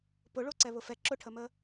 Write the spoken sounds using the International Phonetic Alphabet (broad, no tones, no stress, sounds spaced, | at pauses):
p ʊ ɭ o ǀ ɛ β ʊ f ɛ ǁ ʊ ʈʰ ə m ə